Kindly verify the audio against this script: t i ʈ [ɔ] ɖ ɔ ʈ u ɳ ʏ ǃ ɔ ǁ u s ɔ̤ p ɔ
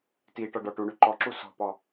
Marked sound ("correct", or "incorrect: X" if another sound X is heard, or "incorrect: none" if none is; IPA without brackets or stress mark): correct